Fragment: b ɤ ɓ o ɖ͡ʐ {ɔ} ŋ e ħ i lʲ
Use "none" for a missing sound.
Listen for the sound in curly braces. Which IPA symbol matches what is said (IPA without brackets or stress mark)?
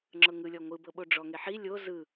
ɔ